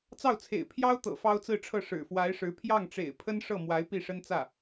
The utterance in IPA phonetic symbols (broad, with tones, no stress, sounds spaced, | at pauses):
t͡s ɑ˥˩ ʊ̯ t͡sʰ ḛ˨˩ ɪ̯ pʰ j ɑ˥ ʊ̯ t̪ ɤ̰˨˩ f ɑ˥ ʊ̯ t͡s ɹ̩˥˧ ʈ͡ʂʰ ɤ˥˩ ʂ ɻ̩˨˩ f w a˧˥ ɪ̯ ʂ ɻ̩˧˥ pʰ j ɑ˥˩ ŋ ʈ͡ʂ ḛ˨˩ ɪ̯ pʰ ə˥ n ʂ ɤ˥˩ m w a˧˥ ɪ̯ p i˥˩ ʂ ə˥ n t͡s ä˥˩